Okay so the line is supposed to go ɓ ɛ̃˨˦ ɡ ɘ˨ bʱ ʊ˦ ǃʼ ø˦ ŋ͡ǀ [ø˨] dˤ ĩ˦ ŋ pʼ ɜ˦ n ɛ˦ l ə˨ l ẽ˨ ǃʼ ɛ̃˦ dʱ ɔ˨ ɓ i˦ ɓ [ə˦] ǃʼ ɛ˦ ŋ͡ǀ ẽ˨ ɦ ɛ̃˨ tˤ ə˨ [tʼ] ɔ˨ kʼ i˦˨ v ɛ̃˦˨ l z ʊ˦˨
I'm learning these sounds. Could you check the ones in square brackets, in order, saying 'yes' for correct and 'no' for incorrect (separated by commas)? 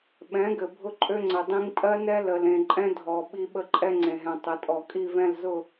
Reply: no, yes, yes